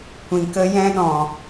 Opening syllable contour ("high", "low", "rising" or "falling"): low